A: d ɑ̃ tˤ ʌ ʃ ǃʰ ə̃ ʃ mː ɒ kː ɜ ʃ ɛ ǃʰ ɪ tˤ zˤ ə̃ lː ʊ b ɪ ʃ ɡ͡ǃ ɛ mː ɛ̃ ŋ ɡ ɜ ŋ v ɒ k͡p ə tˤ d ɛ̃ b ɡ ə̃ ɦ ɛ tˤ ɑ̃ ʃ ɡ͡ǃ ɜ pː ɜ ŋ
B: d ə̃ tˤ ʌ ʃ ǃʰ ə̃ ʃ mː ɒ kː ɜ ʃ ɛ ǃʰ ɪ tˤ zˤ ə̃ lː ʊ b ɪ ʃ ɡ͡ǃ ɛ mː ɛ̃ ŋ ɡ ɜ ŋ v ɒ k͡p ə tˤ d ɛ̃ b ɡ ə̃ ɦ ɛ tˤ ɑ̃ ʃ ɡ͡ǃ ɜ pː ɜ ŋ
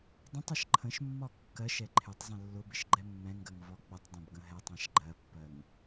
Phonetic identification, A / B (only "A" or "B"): B